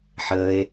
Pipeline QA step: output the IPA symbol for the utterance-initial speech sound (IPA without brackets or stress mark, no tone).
ħ